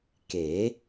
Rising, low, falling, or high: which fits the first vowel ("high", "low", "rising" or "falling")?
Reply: rising